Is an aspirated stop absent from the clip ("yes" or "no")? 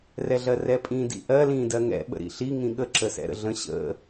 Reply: yes